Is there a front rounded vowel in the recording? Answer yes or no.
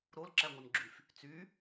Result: yes